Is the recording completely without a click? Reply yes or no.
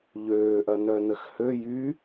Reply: yes